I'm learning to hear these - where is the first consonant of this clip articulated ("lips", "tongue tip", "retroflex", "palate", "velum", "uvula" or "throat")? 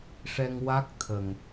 retroflex